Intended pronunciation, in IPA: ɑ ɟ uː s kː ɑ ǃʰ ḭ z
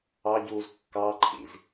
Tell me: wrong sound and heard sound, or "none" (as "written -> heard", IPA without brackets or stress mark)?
s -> z